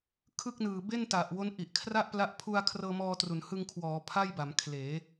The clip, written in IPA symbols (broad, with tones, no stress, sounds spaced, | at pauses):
kʰ ɯ˥˩ k̚ n ɯː˨˩ b e˥˩ n t a˨˩ ʔ w o˦˥ n ʔ i˨˩ ʔ kʰ r a˥˩ ʔ p l a˦˥ ʔ pʰ u˧ a̯ kʰ r ɤː˧ m ɔː˧ t r u˩˦ n h ɯ˧ ŋ kʰ w ɔː˩˦ pʰ a˥˩ j b a˩˦ m kʰ l eː˩˦